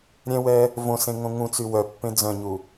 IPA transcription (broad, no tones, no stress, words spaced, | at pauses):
ɾʲɛ̃wɛ | võsẽŋõ ŋũt͡sy wœpːẽ d͡zœ̃ɲu